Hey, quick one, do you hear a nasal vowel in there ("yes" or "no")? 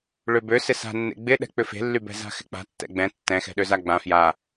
yes